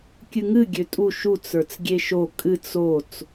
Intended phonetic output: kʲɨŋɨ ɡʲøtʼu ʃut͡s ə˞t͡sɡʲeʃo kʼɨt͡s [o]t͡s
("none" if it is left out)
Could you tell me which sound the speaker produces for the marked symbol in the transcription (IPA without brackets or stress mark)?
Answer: o